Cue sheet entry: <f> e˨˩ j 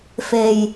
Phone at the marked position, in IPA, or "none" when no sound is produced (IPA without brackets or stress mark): f